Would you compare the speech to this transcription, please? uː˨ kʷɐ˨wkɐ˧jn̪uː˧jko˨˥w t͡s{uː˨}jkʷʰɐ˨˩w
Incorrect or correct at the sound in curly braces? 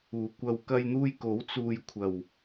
incorrect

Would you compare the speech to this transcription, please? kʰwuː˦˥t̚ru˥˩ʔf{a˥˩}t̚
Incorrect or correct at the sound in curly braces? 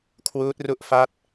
correct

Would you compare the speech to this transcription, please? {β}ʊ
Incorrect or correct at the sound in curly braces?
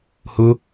incorrect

